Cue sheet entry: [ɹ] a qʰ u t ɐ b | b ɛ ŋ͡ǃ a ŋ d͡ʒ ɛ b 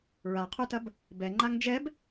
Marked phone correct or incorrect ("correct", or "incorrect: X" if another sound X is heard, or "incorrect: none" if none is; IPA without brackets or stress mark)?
correct